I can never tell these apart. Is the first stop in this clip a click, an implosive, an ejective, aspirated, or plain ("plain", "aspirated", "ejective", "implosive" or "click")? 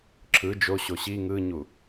click